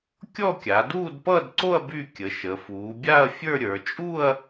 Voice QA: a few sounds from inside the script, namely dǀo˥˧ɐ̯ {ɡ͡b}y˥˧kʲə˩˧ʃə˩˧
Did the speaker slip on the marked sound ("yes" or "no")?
yes